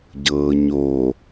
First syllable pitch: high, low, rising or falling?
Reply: low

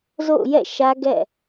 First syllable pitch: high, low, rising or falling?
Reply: falling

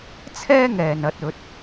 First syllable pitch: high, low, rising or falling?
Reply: high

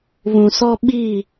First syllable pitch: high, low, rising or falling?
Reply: low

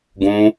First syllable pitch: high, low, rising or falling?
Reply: high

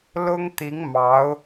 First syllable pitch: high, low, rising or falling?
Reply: high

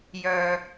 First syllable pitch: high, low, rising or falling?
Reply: low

